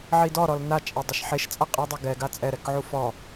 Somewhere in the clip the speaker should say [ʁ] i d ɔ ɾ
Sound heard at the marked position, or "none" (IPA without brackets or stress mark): ʕ